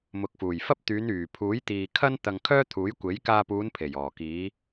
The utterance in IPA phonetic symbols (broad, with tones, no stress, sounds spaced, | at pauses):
m ʊ˨ k̚ f uː˨˩ j f ɐ˥ p̚ t̪ yː˨˧ n yː˨˩ pʰ uː˨˥ j t̪ iː˨ kʰ ɐ˥ n t̪ ɐ˧ ŋ kʰ œː˥ t̪ʰ uː˨˥ j kʷ e˨˥ j k aː˧ p uː˨˧ n pʰ e˨˩ j ɔː˨˩ k iː˨˧